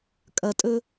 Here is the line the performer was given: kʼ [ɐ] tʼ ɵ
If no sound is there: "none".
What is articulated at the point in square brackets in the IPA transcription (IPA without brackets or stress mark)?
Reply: ɐ